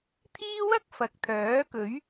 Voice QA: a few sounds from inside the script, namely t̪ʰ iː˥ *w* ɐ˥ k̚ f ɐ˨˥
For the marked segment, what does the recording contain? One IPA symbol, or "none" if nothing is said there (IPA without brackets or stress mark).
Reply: w